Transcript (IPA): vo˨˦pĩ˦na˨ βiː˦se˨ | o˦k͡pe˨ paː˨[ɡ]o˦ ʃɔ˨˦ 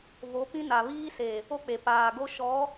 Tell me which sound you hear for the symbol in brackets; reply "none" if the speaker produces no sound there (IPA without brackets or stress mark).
ɡ